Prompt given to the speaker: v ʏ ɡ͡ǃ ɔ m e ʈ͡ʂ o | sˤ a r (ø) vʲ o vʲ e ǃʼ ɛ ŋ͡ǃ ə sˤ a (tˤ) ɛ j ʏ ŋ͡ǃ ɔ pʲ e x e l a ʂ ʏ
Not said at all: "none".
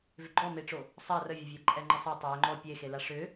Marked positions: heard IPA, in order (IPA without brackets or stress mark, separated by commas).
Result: ə, tˤ